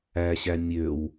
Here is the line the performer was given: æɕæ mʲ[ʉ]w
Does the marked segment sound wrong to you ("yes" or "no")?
yes